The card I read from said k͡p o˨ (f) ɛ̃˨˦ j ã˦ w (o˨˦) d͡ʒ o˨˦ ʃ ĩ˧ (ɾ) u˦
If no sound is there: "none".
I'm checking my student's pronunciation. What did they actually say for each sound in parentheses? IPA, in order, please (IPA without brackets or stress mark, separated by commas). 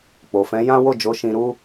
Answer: f, o˦˨, ɾ